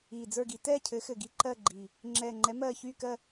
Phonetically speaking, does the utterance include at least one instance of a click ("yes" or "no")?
yes